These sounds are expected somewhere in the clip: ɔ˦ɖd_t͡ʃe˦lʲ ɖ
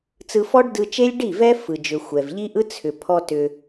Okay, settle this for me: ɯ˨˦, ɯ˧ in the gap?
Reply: ɯ˧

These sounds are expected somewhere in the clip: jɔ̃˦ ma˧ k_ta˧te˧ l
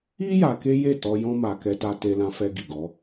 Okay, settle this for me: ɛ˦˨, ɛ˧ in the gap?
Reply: ɛ˧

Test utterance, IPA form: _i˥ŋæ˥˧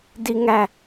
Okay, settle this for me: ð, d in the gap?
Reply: d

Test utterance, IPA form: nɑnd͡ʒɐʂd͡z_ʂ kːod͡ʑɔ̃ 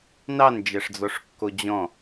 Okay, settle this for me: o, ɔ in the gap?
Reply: ɔ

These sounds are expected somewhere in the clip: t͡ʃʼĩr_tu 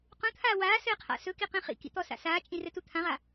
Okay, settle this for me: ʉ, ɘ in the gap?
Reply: ɘ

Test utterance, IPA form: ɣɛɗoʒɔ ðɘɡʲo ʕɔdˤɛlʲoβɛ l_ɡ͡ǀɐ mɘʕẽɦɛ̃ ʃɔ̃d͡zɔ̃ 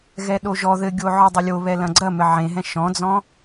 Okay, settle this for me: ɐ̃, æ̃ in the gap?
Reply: ɐ̃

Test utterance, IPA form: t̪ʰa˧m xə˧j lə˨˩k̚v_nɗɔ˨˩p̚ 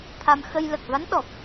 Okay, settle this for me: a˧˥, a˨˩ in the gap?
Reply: a˧˥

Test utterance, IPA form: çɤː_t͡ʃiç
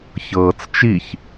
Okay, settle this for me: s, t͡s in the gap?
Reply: t͡s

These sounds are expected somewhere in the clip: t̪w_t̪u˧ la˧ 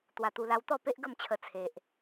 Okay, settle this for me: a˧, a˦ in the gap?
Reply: a˧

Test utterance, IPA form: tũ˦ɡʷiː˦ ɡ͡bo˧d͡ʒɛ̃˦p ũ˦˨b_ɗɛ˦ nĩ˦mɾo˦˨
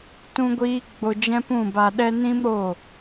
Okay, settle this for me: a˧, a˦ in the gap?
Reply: a˧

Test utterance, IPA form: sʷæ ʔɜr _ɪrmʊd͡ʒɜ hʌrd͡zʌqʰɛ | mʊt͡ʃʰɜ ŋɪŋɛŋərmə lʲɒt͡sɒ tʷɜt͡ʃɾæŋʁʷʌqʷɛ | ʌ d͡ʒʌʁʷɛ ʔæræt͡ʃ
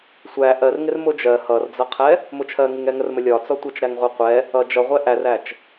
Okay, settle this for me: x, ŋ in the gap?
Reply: ŋ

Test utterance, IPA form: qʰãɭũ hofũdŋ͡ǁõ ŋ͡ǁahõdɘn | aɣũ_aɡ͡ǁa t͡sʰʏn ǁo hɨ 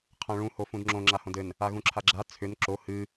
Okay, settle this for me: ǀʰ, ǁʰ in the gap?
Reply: ǁʰ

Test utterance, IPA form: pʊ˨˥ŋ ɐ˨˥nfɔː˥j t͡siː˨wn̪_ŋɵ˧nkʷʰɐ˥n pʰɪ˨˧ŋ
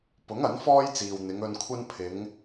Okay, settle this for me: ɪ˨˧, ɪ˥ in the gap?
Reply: ɪ˨˧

